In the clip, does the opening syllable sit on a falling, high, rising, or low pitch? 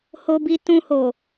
low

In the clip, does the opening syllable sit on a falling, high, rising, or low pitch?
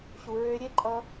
low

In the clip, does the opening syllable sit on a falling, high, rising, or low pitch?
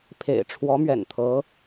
low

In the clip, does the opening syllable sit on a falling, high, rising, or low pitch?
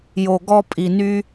low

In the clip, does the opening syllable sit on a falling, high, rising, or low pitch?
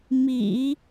low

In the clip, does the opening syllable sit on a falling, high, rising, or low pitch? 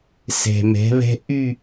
low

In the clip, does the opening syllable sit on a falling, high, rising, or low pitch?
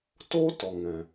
high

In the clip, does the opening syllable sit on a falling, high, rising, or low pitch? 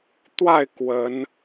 falling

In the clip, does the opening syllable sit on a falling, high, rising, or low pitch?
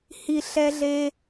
low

